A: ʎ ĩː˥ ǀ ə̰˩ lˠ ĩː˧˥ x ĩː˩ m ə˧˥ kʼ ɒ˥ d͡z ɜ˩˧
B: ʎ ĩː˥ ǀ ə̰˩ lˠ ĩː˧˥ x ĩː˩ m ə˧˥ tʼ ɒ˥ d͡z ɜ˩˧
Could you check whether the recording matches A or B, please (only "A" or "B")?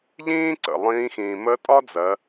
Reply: B